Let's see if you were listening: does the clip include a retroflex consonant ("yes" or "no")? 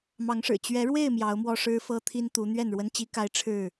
yes